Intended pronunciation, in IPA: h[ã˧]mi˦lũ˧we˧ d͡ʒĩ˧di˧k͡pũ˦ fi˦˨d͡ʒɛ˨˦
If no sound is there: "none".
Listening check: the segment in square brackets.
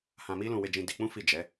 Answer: ã˧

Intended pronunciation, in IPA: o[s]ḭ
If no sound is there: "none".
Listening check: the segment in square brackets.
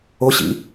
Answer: ɕ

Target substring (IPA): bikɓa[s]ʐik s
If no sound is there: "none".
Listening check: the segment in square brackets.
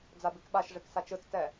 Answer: ʃ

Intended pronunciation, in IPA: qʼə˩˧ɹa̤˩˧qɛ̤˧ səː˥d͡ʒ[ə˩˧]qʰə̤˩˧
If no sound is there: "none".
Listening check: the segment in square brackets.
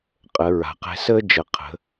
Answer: ə˩˧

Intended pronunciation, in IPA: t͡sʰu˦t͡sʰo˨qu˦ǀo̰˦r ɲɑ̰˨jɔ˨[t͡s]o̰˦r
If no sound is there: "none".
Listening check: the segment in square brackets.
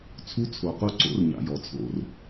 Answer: t͡sʰ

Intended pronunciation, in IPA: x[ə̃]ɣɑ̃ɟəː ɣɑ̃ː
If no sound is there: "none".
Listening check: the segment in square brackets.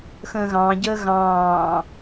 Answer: ə̃ː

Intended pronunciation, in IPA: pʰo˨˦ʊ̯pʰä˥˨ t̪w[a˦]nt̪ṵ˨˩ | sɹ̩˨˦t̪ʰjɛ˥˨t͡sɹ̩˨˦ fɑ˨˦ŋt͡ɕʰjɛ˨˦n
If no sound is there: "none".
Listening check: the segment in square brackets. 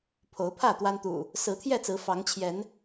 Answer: a˦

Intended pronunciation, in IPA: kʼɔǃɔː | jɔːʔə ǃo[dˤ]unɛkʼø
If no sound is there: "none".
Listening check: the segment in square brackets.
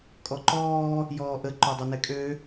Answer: dˤ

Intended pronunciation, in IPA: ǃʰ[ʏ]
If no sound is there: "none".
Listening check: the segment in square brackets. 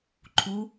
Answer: u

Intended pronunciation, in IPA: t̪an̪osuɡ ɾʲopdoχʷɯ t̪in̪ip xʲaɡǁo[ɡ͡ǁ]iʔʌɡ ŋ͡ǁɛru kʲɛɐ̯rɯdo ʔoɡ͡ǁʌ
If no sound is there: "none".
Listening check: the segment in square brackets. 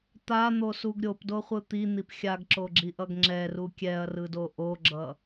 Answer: ɡ͡ǁ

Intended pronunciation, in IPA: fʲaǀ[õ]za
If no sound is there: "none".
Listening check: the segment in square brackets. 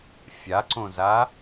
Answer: õ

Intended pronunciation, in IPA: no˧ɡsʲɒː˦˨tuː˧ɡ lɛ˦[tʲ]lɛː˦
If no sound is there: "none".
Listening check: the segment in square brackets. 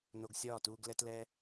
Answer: t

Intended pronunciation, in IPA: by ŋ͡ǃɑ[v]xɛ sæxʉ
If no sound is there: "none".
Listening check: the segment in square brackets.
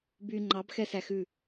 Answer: b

